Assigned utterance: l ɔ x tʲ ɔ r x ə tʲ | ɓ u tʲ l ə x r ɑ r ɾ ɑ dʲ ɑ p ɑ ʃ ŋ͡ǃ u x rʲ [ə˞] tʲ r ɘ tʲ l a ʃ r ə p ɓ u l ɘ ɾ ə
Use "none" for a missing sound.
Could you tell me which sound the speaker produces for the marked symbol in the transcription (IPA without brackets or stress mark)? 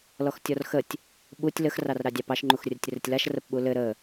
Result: ə